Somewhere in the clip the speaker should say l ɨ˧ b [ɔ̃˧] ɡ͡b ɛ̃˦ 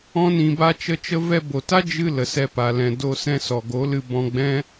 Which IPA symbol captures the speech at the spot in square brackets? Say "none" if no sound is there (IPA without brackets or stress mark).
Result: ɔ̃˧